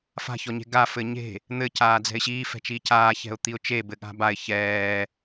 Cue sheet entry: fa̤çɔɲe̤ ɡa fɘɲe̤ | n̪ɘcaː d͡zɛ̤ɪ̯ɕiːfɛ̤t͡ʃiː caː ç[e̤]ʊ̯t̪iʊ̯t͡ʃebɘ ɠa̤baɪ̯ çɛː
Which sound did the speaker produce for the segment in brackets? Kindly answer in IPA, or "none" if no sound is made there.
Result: ɛ̤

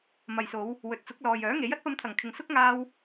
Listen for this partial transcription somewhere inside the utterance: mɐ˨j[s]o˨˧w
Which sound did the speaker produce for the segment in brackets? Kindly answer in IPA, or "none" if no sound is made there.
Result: s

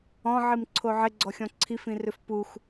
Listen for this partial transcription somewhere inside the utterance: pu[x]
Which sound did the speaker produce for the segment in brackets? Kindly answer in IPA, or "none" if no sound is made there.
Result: x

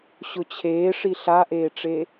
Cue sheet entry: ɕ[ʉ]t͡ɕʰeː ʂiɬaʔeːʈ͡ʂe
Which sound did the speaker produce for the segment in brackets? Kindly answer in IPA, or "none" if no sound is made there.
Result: ʊ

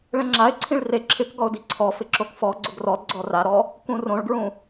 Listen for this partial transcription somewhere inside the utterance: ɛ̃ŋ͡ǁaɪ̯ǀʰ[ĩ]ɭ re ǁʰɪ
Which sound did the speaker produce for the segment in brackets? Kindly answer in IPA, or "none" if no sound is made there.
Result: ĩ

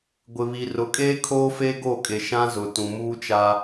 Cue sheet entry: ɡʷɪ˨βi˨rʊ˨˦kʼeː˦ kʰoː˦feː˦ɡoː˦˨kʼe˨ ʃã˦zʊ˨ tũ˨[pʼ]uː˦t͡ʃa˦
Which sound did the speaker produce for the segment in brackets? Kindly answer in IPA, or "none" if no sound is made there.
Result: m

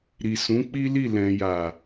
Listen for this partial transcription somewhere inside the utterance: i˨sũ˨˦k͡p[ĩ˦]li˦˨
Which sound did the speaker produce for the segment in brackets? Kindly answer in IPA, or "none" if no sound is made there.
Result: i˦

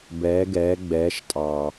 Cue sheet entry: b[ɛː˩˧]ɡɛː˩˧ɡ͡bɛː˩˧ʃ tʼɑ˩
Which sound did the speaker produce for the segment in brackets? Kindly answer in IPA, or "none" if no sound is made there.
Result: ɛː˩˧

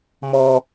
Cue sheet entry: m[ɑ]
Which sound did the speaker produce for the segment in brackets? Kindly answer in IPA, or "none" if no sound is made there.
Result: ɔ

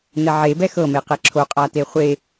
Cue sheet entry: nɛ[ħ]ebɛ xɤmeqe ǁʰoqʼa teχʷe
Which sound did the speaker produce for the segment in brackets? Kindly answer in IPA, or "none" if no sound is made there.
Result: ʕ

